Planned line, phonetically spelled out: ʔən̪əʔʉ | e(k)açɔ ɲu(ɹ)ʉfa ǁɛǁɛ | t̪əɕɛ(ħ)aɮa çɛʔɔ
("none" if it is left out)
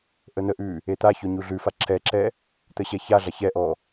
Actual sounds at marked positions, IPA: t̪, ɮ, ç

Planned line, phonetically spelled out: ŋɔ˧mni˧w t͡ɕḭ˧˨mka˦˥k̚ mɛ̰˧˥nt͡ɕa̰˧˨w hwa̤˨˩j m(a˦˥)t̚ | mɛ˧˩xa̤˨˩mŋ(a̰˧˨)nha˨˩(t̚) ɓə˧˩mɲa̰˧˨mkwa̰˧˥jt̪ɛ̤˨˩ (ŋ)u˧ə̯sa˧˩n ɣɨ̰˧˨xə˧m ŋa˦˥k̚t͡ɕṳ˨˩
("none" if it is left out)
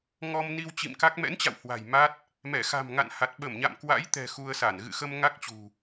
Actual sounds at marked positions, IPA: a˦˥, a̰˧˨, t̚, x

